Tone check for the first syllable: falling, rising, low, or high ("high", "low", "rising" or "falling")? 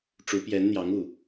rising